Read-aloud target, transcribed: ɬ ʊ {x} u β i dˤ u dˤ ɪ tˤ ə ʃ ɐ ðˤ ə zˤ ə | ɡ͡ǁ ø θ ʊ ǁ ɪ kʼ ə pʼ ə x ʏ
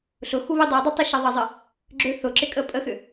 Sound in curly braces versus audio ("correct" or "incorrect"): correct